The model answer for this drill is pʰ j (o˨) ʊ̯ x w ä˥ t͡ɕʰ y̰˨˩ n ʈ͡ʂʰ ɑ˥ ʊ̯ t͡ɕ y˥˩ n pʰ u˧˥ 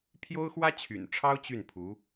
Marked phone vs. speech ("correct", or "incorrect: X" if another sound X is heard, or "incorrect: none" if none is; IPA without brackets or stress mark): incorrect: o˥